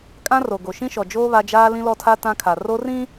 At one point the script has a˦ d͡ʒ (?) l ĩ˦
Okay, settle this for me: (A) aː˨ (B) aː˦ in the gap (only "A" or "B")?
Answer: B